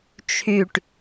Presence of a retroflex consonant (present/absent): present